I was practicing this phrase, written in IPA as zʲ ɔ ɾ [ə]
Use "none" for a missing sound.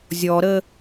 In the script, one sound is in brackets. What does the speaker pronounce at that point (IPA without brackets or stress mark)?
ə